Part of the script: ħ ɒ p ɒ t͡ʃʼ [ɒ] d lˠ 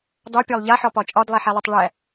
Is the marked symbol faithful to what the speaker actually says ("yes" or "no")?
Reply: yes